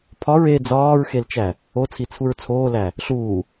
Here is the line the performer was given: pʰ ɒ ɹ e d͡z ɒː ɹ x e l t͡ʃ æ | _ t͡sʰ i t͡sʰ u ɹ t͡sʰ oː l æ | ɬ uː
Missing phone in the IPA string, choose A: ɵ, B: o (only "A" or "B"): B